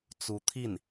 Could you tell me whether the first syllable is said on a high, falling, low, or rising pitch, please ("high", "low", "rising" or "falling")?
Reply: rising